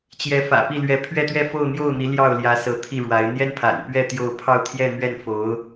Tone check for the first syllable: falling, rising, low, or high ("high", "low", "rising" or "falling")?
rising